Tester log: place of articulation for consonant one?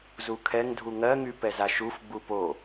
alveolar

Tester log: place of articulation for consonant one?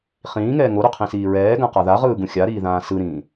uvular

